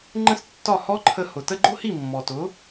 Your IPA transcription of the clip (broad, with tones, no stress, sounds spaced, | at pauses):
ŋ͡ǃ ə̃˥ s tː ɒ˥˩ h ɔ˥ ǃʰ ə˧ h ʊ˩ t ə˥ ɡ͡ǃ ʊ˥ h i˥˩ mː ɔ˩ t ʊ˩˥